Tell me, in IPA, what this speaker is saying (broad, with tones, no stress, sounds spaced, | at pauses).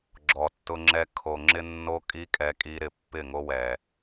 ɡ͡ǁ ɔ˨ tː ʊ˦ ŋ͡ǁ ɛ˦ kʰ o˨ ŋ͡ǁ ɪ˦ nː o˦ kʼ i˦ kʼ ɛ˦ kʼ i˦ ɾ ɪ˨ pː ɪ˦˨ ŋ o˦ w ɛ˨